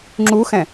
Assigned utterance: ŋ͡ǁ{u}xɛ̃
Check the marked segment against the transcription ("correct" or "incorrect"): correct